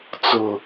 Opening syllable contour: low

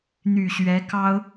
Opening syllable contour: low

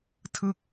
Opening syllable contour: falling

